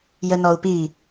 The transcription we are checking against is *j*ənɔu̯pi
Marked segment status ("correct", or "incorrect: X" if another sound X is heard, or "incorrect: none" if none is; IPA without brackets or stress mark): correct